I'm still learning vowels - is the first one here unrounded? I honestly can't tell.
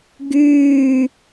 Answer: no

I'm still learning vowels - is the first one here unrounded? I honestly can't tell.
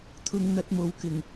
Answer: no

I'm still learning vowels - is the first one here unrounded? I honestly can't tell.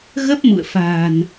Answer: yes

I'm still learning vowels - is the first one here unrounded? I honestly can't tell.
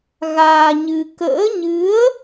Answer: yes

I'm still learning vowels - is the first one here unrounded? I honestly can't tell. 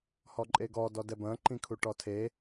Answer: no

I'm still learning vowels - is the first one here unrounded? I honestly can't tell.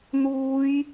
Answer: no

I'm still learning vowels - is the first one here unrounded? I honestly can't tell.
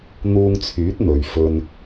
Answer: no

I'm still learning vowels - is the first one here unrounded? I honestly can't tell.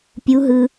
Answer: no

